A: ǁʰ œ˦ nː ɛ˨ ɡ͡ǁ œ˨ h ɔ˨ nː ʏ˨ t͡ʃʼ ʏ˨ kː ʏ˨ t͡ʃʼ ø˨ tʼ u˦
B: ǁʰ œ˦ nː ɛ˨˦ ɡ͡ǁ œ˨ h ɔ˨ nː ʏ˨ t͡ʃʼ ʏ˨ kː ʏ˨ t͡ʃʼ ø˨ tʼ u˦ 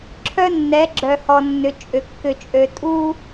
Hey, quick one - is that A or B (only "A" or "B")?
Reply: B